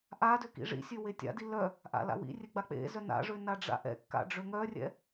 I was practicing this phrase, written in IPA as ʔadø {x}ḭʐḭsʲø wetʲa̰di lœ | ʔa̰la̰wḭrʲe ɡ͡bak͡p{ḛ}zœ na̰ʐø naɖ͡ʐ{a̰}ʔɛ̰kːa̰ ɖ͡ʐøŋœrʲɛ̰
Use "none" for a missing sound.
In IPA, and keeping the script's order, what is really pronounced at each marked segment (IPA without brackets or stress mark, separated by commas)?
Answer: k, ḛ, a̰